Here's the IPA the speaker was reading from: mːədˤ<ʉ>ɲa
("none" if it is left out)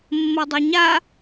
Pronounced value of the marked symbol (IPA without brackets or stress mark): u